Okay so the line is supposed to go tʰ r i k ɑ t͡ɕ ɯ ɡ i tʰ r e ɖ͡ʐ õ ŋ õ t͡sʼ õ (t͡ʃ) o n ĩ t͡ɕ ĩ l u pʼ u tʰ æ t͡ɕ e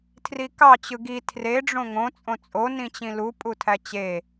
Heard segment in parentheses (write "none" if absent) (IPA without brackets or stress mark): t͡sʼ